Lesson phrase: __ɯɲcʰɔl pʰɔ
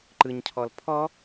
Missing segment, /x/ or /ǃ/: ǃ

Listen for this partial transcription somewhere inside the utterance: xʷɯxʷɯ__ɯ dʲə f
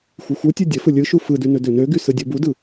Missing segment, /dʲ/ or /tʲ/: tʲ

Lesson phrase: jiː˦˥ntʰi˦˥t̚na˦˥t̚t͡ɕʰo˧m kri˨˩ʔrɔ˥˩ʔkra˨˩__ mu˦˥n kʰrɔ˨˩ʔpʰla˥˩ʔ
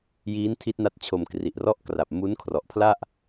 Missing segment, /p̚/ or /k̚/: p̚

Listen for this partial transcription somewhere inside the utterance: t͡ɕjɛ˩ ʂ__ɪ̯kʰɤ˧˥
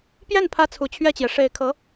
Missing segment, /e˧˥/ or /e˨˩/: e˨˩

